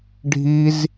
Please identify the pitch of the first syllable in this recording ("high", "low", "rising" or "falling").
high